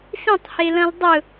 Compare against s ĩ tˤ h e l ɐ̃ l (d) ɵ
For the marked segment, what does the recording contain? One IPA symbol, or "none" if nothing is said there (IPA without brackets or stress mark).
dˤ